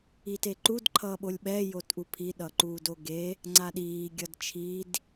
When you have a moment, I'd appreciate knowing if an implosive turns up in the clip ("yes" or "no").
yes